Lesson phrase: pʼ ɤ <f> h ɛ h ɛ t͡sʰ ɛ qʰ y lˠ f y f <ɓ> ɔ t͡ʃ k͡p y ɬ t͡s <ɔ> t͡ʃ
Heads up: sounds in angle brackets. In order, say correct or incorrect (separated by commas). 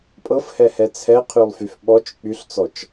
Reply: correct, correct, correct